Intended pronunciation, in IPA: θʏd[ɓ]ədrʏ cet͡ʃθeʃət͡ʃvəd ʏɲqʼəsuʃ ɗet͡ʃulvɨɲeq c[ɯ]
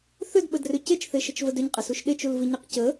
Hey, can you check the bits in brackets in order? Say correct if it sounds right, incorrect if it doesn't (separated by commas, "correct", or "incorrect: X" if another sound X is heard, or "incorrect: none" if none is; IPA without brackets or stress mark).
correct, incorrect: ə